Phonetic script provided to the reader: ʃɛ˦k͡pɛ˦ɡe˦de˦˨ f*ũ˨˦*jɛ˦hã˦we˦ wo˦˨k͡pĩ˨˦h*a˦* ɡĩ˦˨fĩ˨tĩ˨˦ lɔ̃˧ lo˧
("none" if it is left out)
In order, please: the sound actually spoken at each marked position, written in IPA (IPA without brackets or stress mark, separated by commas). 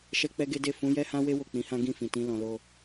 ũ˨˦, ã˦